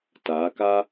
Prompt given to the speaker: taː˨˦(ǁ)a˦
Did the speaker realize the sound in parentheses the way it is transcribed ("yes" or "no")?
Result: no